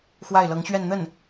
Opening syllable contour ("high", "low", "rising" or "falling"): falling